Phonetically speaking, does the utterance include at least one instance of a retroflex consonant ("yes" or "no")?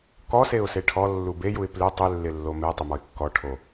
yes